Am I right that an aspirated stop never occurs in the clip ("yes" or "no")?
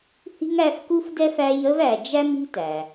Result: yes